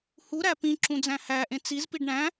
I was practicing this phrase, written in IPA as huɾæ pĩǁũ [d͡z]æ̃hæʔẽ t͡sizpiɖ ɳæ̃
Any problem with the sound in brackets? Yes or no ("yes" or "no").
no